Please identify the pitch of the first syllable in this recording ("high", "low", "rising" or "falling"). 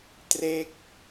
falling